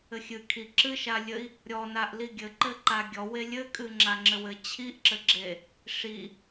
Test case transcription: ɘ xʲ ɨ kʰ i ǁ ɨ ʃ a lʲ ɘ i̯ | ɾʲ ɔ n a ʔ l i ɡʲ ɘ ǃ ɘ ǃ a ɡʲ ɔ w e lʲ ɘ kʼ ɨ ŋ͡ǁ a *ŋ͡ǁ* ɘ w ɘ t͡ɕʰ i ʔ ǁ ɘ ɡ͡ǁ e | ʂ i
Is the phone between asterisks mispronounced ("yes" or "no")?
no